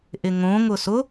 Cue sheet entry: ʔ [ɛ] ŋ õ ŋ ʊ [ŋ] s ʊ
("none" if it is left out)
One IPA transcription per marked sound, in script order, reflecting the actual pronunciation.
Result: ɪ, none

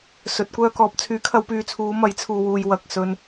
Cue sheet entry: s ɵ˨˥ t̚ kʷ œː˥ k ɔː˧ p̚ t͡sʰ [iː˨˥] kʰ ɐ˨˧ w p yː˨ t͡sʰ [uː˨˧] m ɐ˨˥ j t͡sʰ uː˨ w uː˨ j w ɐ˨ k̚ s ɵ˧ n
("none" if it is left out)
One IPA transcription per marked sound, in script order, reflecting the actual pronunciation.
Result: yː˨˥, uː˨˧

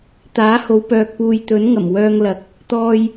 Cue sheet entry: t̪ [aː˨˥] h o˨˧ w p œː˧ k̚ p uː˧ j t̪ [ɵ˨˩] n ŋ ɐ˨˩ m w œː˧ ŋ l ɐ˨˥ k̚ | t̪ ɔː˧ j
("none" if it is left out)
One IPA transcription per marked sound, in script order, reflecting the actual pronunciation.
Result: aː˨˥, ɵ˨˥

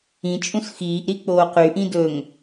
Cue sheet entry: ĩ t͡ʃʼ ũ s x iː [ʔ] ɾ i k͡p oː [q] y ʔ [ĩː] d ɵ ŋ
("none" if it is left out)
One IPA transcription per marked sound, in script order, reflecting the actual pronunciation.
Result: ʔ, q, ĩ

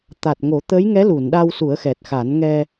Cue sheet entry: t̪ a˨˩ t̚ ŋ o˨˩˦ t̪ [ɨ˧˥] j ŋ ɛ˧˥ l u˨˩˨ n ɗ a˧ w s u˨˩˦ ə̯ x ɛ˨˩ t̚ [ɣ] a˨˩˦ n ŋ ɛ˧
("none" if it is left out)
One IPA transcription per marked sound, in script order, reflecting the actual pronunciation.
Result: ə˧˥, x

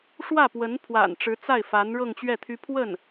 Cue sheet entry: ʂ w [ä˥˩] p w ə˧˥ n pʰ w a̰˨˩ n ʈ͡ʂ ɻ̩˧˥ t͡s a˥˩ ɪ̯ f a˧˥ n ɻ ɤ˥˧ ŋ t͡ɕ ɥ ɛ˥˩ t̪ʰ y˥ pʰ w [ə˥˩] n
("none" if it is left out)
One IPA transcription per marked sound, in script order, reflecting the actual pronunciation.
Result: ä˥˩, ə˥˩

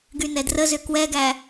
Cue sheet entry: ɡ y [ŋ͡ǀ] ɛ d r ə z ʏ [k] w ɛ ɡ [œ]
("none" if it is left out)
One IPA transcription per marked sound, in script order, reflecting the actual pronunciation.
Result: n, k, æ

